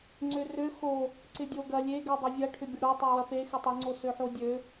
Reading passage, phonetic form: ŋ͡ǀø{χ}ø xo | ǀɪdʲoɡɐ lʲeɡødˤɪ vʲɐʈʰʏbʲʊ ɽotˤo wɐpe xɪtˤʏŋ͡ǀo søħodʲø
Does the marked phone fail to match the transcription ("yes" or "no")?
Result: yes